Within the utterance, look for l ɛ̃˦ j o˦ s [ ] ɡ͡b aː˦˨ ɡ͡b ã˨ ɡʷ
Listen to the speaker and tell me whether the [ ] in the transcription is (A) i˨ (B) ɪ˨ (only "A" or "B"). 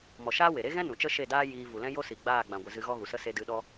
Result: A